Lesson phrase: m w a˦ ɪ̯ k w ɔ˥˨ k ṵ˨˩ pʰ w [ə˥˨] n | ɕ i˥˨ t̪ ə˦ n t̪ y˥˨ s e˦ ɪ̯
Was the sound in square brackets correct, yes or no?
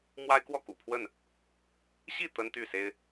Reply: yes